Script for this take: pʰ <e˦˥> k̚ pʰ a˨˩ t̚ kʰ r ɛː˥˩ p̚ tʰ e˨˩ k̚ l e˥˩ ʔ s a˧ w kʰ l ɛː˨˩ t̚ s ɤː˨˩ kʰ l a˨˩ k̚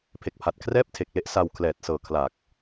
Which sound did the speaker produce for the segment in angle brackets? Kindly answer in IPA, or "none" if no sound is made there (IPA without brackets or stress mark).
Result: e˨˩